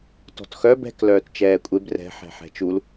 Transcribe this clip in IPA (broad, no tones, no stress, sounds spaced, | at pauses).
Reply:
t ɔ̤ t x œ b ɛ̤ k l œː t t͡ʃ ɛː kʷʼ e b r ɛ̤ ħ ɛ̤ ħ ɛ̤ t͡ʃ u l